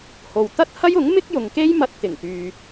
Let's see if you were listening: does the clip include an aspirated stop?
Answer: no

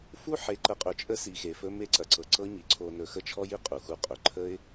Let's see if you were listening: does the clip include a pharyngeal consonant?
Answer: yes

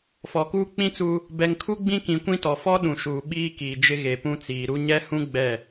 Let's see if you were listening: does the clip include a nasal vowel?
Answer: yes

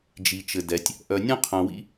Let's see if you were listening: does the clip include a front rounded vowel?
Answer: yes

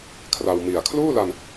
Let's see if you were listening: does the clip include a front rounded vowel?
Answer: no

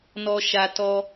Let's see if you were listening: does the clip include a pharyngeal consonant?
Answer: no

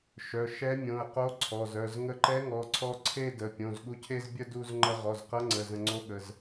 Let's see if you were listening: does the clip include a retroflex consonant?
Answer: no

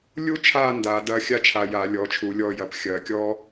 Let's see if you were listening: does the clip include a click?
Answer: no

